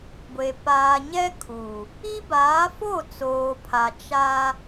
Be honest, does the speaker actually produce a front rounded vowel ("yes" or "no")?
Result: no